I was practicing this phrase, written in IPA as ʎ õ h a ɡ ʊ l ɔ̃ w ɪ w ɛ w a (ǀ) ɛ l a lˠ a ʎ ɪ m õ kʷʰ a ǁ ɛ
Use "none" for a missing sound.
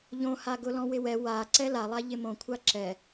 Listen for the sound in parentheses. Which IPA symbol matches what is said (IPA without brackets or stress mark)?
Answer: ǀ